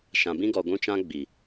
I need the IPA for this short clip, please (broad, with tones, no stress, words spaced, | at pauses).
ʃã˨ bĩ˦ɡɔ˨ɡʷũ˦t͡ʃã˦ ɡ͡bi˨